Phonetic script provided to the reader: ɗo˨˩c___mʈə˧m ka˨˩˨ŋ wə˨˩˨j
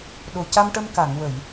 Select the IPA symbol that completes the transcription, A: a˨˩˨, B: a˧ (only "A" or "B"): B